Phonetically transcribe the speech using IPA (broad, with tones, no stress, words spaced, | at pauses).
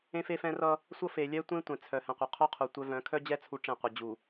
ẽ˦fe˦fɛ̃˦rʌ˦ | sʷʌ˦fe˨ lʲɛ˦tʷẽ˦tʷɛ̃˨ t͡sʰœ˨ hɛ̃˨qʷœ˨ qʰœ˦qʰu˨ tʷœ˦ vœ̃˨˦kʰœ˦d͡ʑɛ˦ t͡sʰu˦ʈ͡ʂẽ˦˨qʷʌ˨ d͡ʑu˨